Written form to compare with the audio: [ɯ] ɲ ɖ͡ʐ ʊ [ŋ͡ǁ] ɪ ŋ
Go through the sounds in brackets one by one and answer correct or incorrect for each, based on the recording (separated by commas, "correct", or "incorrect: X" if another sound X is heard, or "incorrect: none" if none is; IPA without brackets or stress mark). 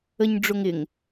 incorrect: ə, incorrect: ŋ